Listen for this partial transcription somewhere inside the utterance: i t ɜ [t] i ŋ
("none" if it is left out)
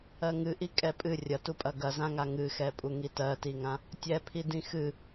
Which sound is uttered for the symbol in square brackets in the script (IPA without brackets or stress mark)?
t